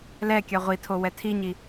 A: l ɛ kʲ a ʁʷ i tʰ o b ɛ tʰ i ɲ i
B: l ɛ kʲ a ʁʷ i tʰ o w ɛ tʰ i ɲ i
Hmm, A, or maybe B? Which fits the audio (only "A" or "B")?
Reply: B